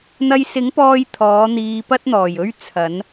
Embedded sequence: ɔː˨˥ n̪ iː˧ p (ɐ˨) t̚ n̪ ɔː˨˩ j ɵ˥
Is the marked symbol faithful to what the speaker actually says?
no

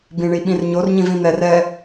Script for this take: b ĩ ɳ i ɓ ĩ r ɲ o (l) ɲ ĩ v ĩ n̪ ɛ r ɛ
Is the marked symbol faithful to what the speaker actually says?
no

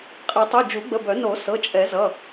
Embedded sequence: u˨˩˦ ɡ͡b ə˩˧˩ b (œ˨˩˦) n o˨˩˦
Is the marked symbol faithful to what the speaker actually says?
yes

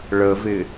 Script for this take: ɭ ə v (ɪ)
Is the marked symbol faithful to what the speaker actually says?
yes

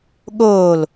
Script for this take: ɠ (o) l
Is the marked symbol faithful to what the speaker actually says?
no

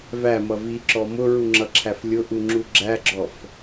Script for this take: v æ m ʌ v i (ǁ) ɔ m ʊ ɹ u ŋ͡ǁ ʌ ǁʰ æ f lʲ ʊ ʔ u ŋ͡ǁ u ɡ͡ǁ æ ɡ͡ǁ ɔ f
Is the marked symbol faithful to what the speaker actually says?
yes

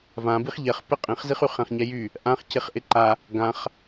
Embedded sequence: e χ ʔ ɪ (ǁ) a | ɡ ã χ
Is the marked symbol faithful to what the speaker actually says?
no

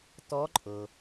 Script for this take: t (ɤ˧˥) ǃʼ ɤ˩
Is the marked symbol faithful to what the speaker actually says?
no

